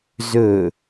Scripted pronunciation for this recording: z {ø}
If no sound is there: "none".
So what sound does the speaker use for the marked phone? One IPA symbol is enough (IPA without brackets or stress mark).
ɵ